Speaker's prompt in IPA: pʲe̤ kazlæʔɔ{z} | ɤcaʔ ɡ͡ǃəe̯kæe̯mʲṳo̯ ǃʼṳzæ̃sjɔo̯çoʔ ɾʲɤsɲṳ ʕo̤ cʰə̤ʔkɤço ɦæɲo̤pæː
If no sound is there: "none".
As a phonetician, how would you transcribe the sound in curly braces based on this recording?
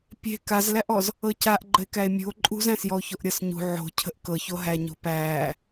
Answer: z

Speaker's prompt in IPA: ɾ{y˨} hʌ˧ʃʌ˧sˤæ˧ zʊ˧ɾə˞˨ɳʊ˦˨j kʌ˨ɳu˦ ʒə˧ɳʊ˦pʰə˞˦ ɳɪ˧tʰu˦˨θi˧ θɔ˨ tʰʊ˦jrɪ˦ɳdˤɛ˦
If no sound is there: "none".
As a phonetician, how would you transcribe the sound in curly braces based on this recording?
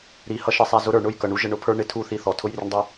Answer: i˨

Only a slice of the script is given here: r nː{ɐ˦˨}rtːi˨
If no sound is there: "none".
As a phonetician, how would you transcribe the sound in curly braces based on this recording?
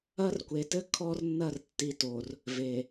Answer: ɐ˦˨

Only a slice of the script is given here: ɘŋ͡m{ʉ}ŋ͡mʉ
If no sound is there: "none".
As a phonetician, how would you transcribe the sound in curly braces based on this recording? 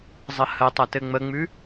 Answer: ə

